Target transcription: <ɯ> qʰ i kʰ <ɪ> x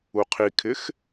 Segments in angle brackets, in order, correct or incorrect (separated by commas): incorrect, correct